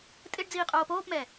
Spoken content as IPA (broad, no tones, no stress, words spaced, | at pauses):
tʼɪɖd͡ziːqʼoː poːpmɛ